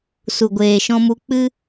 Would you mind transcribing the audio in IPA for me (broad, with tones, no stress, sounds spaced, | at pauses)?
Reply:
s u˨ ɡʷ eː˨ ʃ ɔ̃˧ m u˧ k͡p ɨ˧